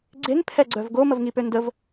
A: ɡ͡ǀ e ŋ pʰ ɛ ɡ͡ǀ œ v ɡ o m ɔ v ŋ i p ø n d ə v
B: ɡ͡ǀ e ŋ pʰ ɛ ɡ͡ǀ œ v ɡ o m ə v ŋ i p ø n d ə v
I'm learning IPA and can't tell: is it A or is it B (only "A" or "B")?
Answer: B